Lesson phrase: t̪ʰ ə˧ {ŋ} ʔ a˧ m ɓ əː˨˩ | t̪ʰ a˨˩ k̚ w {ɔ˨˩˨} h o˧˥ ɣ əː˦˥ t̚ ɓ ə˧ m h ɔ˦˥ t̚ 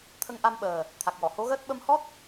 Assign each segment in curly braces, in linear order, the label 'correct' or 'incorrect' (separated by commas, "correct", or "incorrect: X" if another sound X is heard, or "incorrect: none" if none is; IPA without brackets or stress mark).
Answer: correct, correct